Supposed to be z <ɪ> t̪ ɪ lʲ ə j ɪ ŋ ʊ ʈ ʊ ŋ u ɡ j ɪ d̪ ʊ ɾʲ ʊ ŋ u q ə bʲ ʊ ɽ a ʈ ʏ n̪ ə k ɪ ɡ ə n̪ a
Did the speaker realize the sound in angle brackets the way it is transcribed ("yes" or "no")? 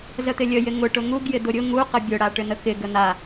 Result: no